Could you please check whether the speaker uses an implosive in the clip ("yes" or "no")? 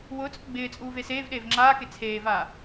yes